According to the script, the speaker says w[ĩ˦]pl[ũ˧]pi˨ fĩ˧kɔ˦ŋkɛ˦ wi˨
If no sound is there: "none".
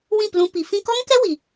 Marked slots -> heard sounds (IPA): ĩ˦˨, ũ˧

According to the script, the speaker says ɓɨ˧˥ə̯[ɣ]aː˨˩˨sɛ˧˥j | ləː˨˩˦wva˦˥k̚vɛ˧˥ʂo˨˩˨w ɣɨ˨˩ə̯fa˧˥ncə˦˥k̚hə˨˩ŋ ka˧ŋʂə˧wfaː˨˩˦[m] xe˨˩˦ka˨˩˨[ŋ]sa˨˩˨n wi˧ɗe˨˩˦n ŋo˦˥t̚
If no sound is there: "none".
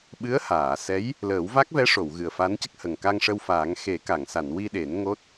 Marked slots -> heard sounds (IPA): h, ŋ, ŋ

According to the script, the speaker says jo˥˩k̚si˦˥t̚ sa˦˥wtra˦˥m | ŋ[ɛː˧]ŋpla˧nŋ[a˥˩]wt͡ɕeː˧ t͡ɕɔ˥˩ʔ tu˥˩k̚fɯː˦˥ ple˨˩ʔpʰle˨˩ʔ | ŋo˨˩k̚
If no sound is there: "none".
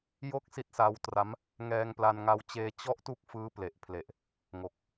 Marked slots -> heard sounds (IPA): ɛː˧, a˧

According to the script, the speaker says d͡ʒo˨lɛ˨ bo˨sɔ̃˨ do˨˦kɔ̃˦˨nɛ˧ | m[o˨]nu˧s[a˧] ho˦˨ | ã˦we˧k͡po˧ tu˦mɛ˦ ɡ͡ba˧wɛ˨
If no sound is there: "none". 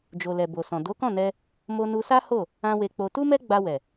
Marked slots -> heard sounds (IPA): o˧, a˦

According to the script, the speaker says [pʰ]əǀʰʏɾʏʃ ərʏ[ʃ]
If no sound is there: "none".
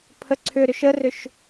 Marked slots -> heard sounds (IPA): pʰ, ʃ

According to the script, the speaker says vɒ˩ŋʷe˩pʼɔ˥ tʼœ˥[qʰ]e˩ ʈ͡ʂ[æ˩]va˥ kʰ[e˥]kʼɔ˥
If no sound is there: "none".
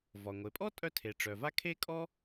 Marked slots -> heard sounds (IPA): tʰ, œ˩, e˥

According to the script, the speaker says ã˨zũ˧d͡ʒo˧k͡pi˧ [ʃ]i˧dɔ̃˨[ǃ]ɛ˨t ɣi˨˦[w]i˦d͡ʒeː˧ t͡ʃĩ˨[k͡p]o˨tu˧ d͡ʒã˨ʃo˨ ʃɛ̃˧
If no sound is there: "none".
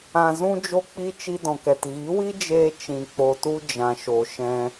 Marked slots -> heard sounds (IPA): t͡ʃ, k, w, k͡p

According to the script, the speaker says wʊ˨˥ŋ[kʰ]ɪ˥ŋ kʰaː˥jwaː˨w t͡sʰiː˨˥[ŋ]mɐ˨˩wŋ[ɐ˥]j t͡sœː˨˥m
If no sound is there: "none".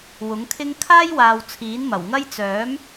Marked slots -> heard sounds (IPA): kʰ, n, ɐ˥

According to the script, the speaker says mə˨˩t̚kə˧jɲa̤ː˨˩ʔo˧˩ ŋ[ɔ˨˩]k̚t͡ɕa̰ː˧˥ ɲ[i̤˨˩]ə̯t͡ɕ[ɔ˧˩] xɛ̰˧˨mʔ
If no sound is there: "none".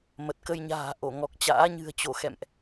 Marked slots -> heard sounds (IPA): ɔ˨˩, ɨ̤˨˩, o˧˩

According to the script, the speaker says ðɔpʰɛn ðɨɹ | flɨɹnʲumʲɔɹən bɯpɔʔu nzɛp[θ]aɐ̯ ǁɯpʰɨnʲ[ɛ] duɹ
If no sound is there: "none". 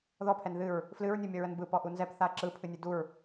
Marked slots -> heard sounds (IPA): θ, ɨ

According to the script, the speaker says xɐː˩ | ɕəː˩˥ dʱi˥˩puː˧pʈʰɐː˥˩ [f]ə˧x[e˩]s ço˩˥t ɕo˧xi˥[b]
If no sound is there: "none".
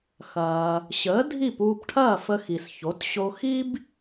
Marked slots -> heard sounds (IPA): f, i˩, b

